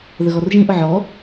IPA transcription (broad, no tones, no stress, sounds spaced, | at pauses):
ð ə ɣ ɔ r ʒ ĩ ʔ ʊ ʕ ɔ